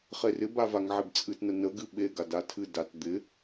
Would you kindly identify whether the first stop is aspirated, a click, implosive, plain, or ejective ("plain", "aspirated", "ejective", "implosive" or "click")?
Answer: plain